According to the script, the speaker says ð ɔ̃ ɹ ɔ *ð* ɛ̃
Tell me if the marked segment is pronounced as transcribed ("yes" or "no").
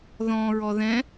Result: yes